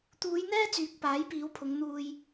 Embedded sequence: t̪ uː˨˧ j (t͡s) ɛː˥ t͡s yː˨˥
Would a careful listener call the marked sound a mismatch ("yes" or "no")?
yes